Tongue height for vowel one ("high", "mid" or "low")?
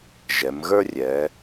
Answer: mid